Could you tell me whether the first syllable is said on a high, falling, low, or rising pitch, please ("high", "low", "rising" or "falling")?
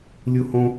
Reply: high